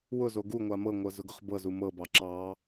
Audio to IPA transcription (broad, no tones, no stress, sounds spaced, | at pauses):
w ʊ z o ɡ u ŋʷ a m ɤ ŋʷ ɤ z ʊ ɡ ʊ χ b ɤ z u m ɤ b ɑ ǁ ɑ